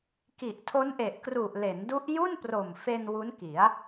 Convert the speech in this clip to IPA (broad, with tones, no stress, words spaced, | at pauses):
ki˨˩ʔtʰo˦˥nʔe˨˩ʔkru˨˩ʔ le˩˦ndu˦˥ʔ ju˥˩npro˨˩mfe˧n wu˦˥nki˩˦a̯